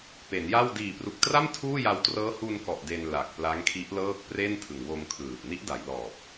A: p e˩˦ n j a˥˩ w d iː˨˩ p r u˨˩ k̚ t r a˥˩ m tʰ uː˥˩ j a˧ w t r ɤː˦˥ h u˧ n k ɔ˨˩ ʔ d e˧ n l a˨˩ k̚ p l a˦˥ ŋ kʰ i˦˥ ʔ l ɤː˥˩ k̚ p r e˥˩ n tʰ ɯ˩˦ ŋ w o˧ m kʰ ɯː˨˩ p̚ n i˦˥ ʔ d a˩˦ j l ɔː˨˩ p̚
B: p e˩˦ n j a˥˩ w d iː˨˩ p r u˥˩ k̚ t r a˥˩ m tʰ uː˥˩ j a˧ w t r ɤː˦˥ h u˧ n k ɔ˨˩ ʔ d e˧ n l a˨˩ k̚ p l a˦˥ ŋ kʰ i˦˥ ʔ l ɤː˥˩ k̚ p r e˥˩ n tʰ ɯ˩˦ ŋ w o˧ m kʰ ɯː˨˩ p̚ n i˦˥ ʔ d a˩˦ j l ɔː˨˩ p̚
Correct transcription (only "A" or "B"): A